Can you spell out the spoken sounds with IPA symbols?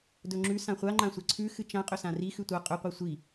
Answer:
dɵŋ͡ǁʉ sãχʷa ŋ͡ǃãsʷɐǀʰʉ xɨt͡ʃã qʼɵsãri xʉtʷa qʼɵ qʷɨsʷi

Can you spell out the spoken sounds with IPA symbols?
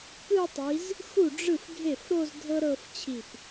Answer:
kɯ˥˧tˤi˨˦z | xu˥˩ɖ͡ʐɯ˥˩f ɡʱe˥˩fɾo˥˧z dʱɤ˥ɾɤ˥˧f t͡ɕʰi˧˩p

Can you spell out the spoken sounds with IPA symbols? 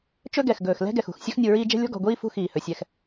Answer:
t͡ʃɵ˦ɡɛ˨x ɡɵː˨xlɛ̤˦ɡɛ˨x ṳ˨x sʲɵ˦xnʲu˨ɹiː˦ d͡ʒɛ̤˦lʲɔ̤˦ɡɔ̤˨ɡʷiː˦ fṳ˦xiː˨hɵ˨ sʲɛ˦x

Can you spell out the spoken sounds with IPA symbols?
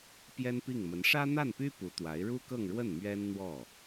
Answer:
pjɛ˥npi˥˩ŋmə˧˥n ʂä˥n̪a˥˩npy˥ pu˧˥t̪wa˧˥ɪ̯ ɻu˥kɤ˥˧ŋɻwə˥˩n mɥɛ˥nn̪wɔ˥˩

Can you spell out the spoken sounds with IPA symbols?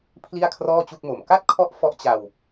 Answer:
pʰli˥˩a̯kʰrɔː˥˩t͡ɕu˥˩k̚mo˨˩m ka˥˩t̚kʰɔ˦˥ʔ fɔ˦˥ʔt͡ɕa˧w

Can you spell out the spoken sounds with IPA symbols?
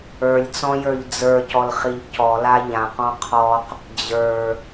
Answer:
ə˞lʲt͡sɔ̃jə˞ʎ d͡zə˞cɔlχiʎ cɔla ʎãqɔ̃ qʰɔq | d͡ʑə˞

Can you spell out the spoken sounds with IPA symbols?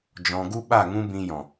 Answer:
d͡ʒɔ̃˧ ɡu˦ɓa˦˨ ŋũ˦bĩ˧jɔ̃˨

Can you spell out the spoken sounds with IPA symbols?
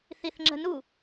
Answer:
θiθŋ͡ǁə̤nu

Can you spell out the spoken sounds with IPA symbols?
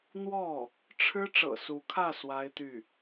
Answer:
n̪wɔ˥˩ | ʈ͡ʂʰɻ̩˥ ʈ͡ʂɤ̰˨˩su˧˥kʰä˥˩ swa˥ɪ̯t̪y˥˩

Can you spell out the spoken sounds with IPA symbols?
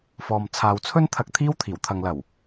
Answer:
fɔː˨m t͡sʰaː˨wt͡sʰɵ˥nt̪ʰɐ˧k̚ t̪ʰiː˥wt̪ʰiː˨˩w t̪ʰɐ˨ŋlɐ˨˩w

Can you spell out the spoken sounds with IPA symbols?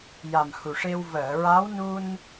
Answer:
ja˨˩mhu˨˩ʂe˧w vəː˨˩˨ɹa˧˥wnu˧n

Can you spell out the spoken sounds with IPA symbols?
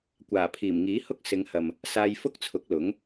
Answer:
kʷaː˨˩pʰiː˨˩mŋiː˨˥hʊ˥k̚ sɪ˨˧ŋhɐ˨m | saː˧jfʊ˥k̚t͡sʰʊ˨˥k̚lʊ˨˥ŋ

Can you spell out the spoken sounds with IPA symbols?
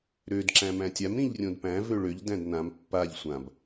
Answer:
ɾød ǁæ̃mæ̃tʲam ɾĩʎrʲõdpæ̃ vøɭøʎ dæ̃dnãm pːaʎ sʷãb

